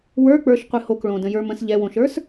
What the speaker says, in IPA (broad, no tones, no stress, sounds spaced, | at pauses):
w ə˞ k͡p ə˞ ʃ qʷ ɨ h o k ɭ õ d ə̃ j ə˞ m ə̃ s ʎ ɛ w õ ʃ ə˞ s